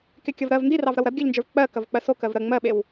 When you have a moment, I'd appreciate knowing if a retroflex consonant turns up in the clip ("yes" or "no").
no